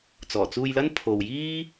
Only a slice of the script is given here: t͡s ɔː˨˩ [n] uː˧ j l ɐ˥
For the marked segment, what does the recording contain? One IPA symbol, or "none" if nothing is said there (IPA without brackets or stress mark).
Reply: t͡s